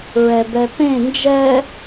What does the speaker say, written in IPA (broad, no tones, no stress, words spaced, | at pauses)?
ɹɛbɛpẽ nd͡ʒɛ